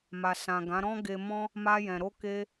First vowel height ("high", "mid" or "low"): low